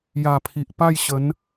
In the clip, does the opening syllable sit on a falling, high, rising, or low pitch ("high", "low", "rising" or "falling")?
low